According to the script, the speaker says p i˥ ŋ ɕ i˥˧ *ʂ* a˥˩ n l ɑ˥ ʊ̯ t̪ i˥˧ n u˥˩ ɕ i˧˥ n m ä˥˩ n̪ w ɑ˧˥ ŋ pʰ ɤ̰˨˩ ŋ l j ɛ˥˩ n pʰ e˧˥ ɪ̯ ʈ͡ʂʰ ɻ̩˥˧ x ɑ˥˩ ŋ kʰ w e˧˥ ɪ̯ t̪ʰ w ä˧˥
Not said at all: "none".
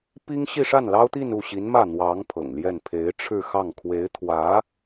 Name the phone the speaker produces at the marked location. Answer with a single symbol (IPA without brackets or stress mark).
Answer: ʂ